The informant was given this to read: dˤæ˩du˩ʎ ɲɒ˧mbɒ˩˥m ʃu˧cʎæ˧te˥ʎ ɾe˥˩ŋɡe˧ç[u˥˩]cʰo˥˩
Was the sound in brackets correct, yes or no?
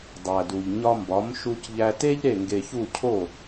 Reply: yes